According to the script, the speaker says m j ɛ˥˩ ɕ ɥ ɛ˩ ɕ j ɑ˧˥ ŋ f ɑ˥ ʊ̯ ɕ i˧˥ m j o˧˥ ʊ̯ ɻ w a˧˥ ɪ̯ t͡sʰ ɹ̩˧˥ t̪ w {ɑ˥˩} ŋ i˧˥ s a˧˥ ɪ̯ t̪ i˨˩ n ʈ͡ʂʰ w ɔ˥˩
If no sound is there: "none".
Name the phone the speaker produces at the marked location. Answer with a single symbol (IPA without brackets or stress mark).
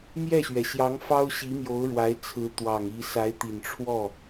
ɑ˨˩